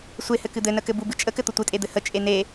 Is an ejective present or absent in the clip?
present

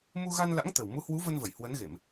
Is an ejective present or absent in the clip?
absent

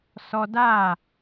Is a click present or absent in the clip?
absent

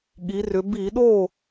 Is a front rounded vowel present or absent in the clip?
present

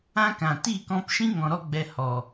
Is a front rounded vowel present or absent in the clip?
absent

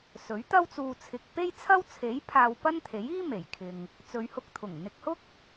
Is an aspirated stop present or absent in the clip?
present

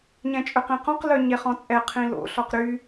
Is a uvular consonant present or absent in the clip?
present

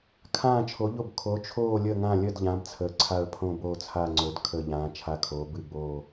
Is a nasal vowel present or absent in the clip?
present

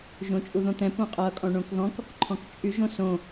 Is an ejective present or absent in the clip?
present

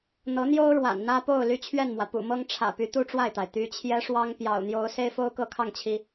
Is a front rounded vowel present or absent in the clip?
present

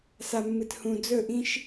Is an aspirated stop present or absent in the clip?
absent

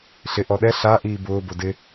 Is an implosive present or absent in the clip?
present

